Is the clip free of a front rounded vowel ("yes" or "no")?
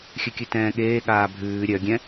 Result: no